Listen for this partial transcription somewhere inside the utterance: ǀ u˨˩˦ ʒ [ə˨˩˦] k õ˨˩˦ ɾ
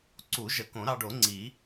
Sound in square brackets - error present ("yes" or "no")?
no